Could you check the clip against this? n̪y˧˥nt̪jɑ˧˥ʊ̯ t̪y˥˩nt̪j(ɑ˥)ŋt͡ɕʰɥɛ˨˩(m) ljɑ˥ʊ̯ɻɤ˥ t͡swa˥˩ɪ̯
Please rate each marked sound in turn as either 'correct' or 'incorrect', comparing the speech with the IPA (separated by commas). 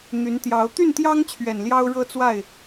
correct, incorrect